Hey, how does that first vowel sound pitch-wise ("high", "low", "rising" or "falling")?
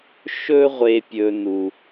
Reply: high